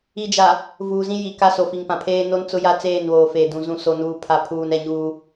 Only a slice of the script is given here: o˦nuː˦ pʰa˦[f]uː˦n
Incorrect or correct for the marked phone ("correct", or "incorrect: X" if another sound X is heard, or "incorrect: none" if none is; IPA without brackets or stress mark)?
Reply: incorrect: pʰ